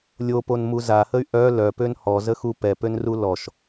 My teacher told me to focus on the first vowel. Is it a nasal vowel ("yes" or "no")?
no